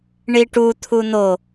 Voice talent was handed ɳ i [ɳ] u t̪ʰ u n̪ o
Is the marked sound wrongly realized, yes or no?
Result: yes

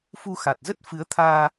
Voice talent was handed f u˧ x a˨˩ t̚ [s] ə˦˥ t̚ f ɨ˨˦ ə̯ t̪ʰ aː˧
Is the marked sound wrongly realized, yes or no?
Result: yes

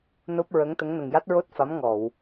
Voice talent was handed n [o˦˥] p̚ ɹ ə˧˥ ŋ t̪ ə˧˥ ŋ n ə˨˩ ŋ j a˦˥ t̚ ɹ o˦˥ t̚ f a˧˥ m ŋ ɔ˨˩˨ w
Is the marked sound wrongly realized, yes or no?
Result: no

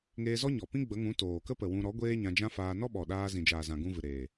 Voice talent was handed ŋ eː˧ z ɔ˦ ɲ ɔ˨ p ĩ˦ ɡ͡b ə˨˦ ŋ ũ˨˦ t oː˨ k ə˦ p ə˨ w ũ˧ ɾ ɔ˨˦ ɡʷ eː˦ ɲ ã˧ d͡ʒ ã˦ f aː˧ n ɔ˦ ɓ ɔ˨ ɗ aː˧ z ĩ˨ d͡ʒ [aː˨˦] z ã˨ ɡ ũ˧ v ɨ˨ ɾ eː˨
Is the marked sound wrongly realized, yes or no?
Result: yes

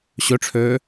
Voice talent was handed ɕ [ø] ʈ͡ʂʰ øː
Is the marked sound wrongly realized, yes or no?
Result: no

